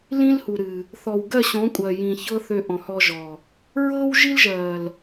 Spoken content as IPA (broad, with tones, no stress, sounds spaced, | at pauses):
l ĩ˦ l h u˨ ɾ ɨ˨ | θ ɔ˨ w ɡ ɜ˦˨ ɕ ɔ̃˨˦ kʷʼ ɜ˨ j ĩ˨ ç ɤ˦ θ ø˧ ʔ ɔ̃˨ h ɔ˧ ʒ ɔ˨ | ɹ ɤ˦ w ʒ i˦ l ʒ ɜ˨ l